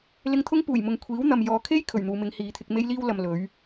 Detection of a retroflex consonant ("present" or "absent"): absent